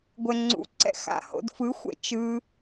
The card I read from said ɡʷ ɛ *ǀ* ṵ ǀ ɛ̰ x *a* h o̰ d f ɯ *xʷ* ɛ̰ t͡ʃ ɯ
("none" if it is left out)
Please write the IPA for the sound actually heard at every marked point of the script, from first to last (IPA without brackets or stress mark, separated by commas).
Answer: ŋ͡ǀ, a̰, xʷ